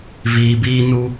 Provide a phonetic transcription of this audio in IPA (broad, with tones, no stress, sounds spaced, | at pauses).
v iː˨ b iː˧ n u˧